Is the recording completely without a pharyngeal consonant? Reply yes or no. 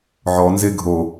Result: no